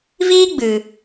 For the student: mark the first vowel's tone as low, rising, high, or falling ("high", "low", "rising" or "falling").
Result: high